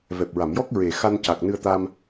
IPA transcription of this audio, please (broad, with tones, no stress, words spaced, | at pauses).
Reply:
vɛ˨˩p̚ɹa˨˩˨m jɔ˦˥k̚ɹe˨˩xa˧n ca˨˩k̚ nɨ˧ə̯t̪a˧m